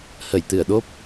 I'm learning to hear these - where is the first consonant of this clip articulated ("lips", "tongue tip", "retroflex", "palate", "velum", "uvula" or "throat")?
throat